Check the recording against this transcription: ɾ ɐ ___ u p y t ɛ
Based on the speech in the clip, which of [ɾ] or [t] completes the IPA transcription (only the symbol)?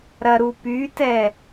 ɾ